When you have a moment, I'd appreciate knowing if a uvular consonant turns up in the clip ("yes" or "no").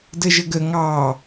no